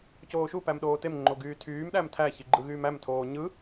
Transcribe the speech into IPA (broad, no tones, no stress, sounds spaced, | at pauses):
c oː ʃ u p æ m ɗ oː t e m ŋ͡ǃ o ɡ yː tʰ yː m ɗ æ m tʰ æ ç i ɡ͡ǃ ɯ ɣ yː m æ m tʰ oː ɲ ɯ